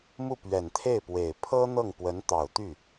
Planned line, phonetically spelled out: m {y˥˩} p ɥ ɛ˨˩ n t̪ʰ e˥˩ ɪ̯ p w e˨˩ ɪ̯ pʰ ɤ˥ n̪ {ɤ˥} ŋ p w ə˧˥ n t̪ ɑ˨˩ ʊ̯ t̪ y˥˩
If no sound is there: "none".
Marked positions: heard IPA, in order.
u˥˩, ɤ˥˩

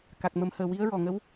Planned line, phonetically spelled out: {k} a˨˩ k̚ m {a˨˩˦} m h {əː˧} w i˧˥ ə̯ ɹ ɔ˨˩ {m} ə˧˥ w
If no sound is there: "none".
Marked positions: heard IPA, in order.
k, ə˨˩˦, əː˨˩, ŋ

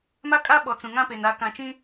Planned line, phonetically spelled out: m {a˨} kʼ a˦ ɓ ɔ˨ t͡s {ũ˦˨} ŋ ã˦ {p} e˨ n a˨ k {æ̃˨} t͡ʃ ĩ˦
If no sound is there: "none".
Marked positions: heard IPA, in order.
a˦, ũ˨, p, ã˨

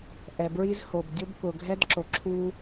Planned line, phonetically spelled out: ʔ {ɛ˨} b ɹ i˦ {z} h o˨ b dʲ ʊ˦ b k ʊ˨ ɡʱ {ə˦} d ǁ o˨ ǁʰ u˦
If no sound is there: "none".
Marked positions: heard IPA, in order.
ɛ˨, z, ɛ˦

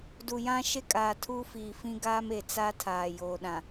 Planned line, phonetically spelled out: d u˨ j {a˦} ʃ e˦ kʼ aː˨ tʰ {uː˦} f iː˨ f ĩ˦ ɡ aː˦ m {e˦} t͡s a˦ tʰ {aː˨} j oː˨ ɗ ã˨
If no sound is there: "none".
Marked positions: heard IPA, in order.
ã˦, uː˦, e˨, aː˨

